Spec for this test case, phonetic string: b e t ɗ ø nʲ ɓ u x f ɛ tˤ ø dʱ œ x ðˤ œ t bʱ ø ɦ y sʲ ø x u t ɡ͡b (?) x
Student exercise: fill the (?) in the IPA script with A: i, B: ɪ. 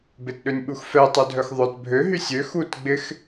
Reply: B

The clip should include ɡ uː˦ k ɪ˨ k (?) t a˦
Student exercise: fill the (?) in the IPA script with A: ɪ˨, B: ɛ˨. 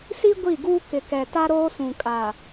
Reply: B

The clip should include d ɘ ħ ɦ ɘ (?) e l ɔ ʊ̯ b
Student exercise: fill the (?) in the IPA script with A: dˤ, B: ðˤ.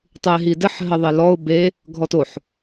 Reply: B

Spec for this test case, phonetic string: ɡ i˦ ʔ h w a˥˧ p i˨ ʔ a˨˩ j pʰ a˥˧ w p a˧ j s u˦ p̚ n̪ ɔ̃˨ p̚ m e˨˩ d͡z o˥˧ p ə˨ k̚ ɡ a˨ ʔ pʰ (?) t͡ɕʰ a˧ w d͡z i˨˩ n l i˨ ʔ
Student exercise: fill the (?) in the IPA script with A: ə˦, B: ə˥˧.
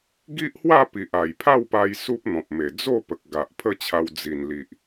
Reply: B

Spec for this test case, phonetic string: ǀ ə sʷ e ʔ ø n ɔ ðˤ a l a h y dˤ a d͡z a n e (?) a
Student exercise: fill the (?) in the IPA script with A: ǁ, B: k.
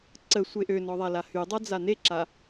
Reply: A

